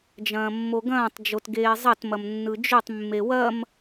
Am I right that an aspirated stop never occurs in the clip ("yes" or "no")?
yes